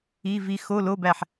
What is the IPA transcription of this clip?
i˧˥˧ v i˦˥ x o˧˥˧ l o˧˥˧ b æ˦˨ ħ

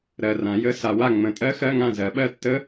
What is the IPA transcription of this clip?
ɾ ɜ˨ r ã˨˩˦ j ə˧˥˧ s a˨ w a˦˨ ŋ͡m ə̃˨˩˦ tʼ ɜ˦˥ x ɜ˧˥˧ ŋ ã˦˨ z ɜ˨˩˦ ɓ ɜ˦˨ tː ə˦˥

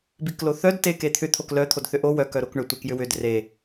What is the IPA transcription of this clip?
b i k l o θ œ d t e k e t̪ʰ ʏ t̪ʰ o k l œ t̪ʰ o d θ ʏ ʔ o w œ k œ ɾ o k ɳ ʏ tʷ e k j ʏ w ʏ d r e

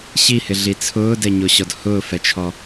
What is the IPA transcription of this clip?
ɕ i h ɪ ɮ i t͡sʰ ʊː d ɛ ɲ o ɕ ɔ d h ʊː f ɛ t͡ʃʰ ɔ

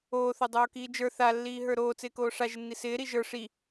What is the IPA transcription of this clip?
oː θ o dˤ oː k iː d͡ʒ ə˞ θ a lː iː ɦ ə˞ ɾ oː t͡s ɪː k oː ʂ a ʒ ɪ nː i s ɪː ɾ i ʒ ə˞ ʂ i

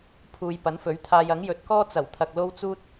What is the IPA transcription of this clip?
pʰ uː˧ j p ɐ˨˥ n f ɵ˨˥ ɥ t̪ʰ aː˧ j ɐ˨˥ ŋ j ɵ˨˥ t̚ k ɔː˥ t͡s ɐ˨˩ w t̪ʰ ɐ˨ k̚ l o˥ w t͡s uː˥ t̚

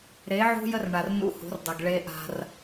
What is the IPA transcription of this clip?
ɾ e˨˦ ʕ ṳ˦ j ə˦ r ɳ a˨ r n ṵ˦ h ṳ˨˦ r dˤ ʌ˨ ɡ ɭ e˦ ʔ a̤˦ r

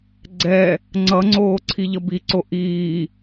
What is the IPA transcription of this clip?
ɡ͡ǀ ɛ | ŋ͡ǀ ʌ ŋ͡ǀ oː ǀʰ i ʎ ʌ b i ǀ o ʔ iː

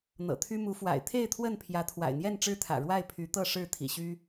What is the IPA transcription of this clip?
n̪ ɤ̰˨˩ t̪ʰ y˦ m u˨˦ f w a̰˨˩ ɪ̯ t̪ʰ e˥˨ ɪ̯ t̪ʰ w ə˥˨ n pʰ j ä˨˦ t̪ʰ w a̰˨˩ ɪ̯ n̪ j ɛ˥˨ n ʈ͡ʂ ɻ̩˦ t̪ʰ ä̰˨˩ ɻ w a˥˨ ɪ̯ pʰ y˨˦ t̪ ɤ˥˨ ʂ ɻ̩˥˨ t̪ʰ ḭ˨˩ ɕ y˦

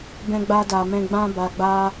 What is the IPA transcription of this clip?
b ɛ̃˧ ɡ͡b a˧ d a˨ m ɛ̃˧ ɡ͡b ã˦ b a˧ ɡ͡b a˦

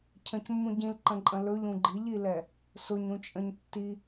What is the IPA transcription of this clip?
cʰ ə̃ c mː ũ ɟ ĩ l ǃ ə̃ ǃʼ ə̃ l ɵ ʎ ũ ɡ͡ǃ i ʎ i l ɛ | s ʊ ɲ ũ t͡ʃʼ ə̃ ɲ tː i

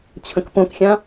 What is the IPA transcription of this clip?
t͡ɕʰ ə̃ k p õ k xʲ ã

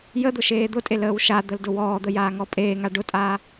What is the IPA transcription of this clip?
j ə d̪ ʊ ʃ eː d̪ ʊ tʼ e l əː w ʃ a d̪ ə l d ʊ w ɔː d̪ ə j aː ŋ ɔ pʼ eː ŋ a ɖ ʊ tʼ aː

